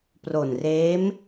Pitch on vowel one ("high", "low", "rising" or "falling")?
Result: low